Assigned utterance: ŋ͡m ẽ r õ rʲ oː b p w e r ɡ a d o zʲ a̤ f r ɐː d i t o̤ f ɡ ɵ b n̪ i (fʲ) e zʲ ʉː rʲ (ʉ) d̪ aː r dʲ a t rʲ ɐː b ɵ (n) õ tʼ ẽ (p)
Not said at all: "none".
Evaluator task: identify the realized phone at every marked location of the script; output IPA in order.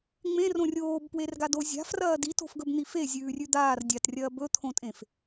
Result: f, ʉ, t̪ʰ, f

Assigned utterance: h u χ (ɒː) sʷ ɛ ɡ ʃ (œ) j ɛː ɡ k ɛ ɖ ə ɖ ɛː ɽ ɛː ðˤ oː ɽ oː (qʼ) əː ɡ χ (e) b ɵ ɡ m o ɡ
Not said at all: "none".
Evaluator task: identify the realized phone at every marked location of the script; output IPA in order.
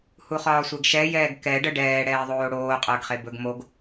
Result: ɒː, ɛ, qʼ, e

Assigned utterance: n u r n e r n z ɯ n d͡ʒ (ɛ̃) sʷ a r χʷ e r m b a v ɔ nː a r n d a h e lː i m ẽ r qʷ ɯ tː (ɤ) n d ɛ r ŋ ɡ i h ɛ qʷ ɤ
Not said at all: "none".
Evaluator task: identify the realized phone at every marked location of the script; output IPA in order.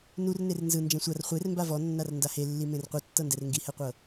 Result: ɛ̃, ɤ

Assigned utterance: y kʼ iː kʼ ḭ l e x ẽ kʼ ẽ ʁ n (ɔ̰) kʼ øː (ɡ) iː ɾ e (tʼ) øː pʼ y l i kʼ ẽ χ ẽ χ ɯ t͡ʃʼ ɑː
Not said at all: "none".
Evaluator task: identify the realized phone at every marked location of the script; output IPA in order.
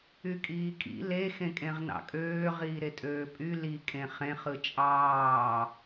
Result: ɑ̰, ʁ, tʼ

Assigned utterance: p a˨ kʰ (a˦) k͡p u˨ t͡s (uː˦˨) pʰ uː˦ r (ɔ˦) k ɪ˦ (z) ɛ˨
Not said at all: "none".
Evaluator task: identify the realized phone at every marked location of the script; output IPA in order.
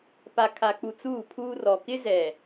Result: a˨, uː˦˨, ɔ˨, z

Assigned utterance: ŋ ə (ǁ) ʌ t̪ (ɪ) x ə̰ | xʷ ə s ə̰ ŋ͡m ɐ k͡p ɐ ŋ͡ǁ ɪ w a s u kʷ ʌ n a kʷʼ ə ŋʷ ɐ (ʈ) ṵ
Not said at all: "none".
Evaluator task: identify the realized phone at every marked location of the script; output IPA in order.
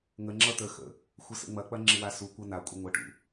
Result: ŋ͡ǁ, ə, ʈ

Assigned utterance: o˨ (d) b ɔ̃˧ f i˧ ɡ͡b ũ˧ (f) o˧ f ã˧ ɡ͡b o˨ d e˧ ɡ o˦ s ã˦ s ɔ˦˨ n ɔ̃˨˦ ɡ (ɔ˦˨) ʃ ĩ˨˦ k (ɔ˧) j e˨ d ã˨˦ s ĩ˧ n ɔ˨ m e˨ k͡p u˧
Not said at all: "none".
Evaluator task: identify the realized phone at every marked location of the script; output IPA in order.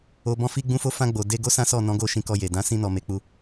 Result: none, f, o˦˨, ɔ˧

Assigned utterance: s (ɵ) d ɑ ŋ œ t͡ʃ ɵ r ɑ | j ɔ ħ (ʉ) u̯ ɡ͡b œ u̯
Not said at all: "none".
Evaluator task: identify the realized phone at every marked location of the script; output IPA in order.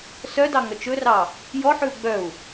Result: œ, ʉ

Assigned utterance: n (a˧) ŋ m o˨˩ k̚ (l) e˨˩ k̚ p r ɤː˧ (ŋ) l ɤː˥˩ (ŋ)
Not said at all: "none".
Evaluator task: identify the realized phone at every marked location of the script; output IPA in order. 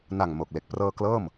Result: a˨˩, l, k, m

